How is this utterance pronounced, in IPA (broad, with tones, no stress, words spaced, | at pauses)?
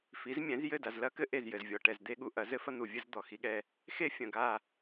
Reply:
fi˨˦zmʲɛ̃˨˦zjɘ˦˨ da˨zlɐ˦kɘ˦ ʔe˦˨zjɘ˨zvʲɔ˨ ʈɛ˨zd̪e˦ɠu˨ ʔɐ˨˦zɘ˦ fɐ˦n̪u˨ vʲɘ˦z d̪ɔ˨xi˦ɠɛ˦ | xe˦ fʲɐ̃˨ɡa˦˨